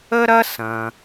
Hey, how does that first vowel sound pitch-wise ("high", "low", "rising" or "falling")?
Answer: high